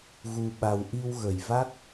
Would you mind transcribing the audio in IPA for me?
ɣ u˧ ɓ a˧ w ʔ i˧ w ɣ ə˨˩ j v a˦˥ k̚

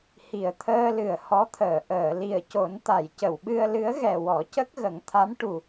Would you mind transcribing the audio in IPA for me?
h i˨˩ ə̯ t̪ʰ əː˧ l ɨ˨˩ ə̯ h ɔ˧˥ t̪ʰ əː˨˩˨ ʔ əː˨˩˨ l i˨˩ ə̯ c o˨˩˦ n t̪ a˨˩˨ j c ə˨˩˨ w ɓ ɨ˧ ə̯ l ɨ˧˥ ə̯ ɣ ɛ˨˩ w ɔ˨˩˦ c ə˦˥ k̚ ɣ ə˨˩˦ ŋ t̪ʰ a˧˥ m ʈ u˨˩

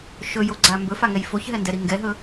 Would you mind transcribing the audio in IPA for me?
ʃ ɵ j o ɡ͡ǀ a m b ɵ f a ŋ ɛ j f o ç ɦ ɛ n d ɛ ɾ i ŋ ɡ ɛ ɦ ɵ

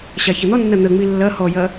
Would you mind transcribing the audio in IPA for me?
ɕ a ç ɐ n̪ ɔ nː ɐ n̪ ə ŋ͡m i lː ɐ h ɔ j ɐ

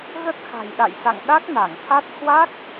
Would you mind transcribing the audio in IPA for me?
ɣ ə˦˥ t̚ x a̤˨˩ j ɗ a̰˧˨ j s a̰˧˨ ŋ ɗ a˦˥ k̚ n a˧˩ ŋ t̪ʰ a˦˥ t̚ h w a˦˥ k̚

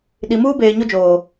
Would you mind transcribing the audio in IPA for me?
ɗ i˨ m uː˦ b eː˨ ɲ o˦ d͡ʒ oː˨

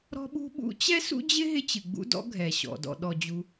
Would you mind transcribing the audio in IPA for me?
ɾ ɔ̤˥ ɓ ṳ˥ ɓ ṵ˥ t͡ɕ ɛ˥ s ṵ˥ d͡ʑ ɪ˥ ɦ ɪ˥ t͡ɕ ɨ˩ ɡ͡b ṵ˥ d ɔ̰˥ ɡʱ ɛ˩ ɕ ɔ̰˩ d ɔ̰˩ ɗ ɔ˩ d͡ʑ u˩

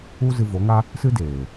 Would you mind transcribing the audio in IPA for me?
u˦ z ɨ˧ v o˨˦ ŋ a˦ | s ɨ˦ d eː˨

